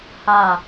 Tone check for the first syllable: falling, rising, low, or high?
falling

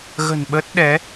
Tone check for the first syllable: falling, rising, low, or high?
low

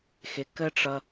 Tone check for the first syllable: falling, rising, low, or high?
low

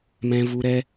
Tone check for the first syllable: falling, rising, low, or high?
low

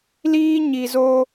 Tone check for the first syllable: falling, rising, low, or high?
high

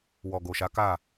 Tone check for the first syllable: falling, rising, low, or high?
low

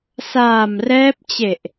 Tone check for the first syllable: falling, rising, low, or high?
low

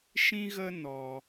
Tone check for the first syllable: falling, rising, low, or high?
high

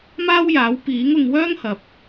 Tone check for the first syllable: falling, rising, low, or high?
high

